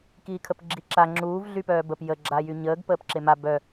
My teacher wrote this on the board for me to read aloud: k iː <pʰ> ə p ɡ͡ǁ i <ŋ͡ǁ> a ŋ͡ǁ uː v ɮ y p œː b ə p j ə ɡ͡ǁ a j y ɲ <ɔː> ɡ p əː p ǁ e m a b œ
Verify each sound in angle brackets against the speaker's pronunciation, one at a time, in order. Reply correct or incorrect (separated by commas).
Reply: incorrect, incorrect, incorrect